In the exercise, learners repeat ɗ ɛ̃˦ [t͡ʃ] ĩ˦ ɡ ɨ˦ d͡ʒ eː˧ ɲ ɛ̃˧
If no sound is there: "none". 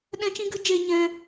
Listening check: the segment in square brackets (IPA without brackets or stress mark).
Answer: t͡ʃ